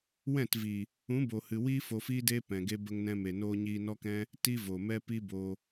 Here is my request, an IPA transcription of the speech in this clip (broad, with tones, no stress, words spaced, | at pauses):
wɛ̃˦˨tvi˨ | ũ˨˦bo˨ hɨ˨wiː˦ fo˧fiː˦deː˦ pɛ̃˨ɡe˦ bə˧ŋnɛ̃˧me˨ noː˧ɲiː˧nɔ˦kɛ̃˦ | ti˦vo˨mɛ˦ pi˦bo˧